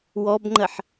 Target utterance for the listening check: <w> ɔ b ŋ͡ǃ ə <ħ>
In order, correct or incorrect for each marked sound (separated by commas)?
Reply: correct, correct